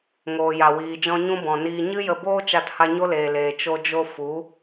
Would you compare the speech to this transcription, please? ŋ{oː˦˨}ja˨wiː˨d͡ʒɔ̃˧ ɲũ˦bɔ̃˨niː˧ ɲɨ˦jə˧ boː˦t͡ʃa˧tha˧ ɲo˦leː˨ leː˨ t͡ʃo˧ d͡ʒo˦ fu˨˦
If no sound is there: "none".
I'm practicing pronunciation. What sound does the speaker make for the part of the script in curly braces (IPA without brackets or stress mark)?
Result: oː˨